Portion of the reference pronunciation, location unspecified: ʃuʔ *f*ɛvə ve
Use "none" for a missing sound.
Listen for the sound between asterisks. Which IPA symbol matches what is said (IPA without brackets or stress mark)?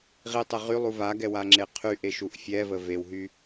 fʲ